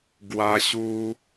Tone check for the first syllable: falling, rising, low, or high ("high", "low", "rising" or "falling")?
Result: high